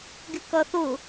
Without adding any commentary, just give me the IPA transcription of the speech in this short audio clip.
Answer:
ɡɪkʌθʊ

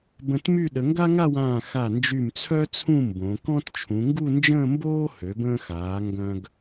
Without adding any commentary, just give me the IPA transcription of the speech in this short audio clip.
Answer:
bə̃˧tmy˥˧ ɗə˩˧ŋɡa˥ ŋa˥˧wãː˧˩ xa˧˩nd͡ʒy˧˩mt͡sʰœ˥ t͡sʰũ˥˧mbõ˩˧kɔ̃˥t t͡ʃʰũ˩˧ŋɡu˥˧nd͡ʒə̃ː˥˧ mboː˥ hø˩˧bə̃ː˧xaː˩˧ ŋɡœ̃˧ɡ

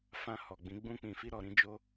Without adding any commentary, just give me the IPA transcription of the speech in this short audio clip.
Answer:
fã˧ hɔ˨ɡ͡bĩ˨˦ ɡ͡bũ˦k͡pĩ˧fi˦ ɾɔ˧ɾĩ˦d͡ʒo˦

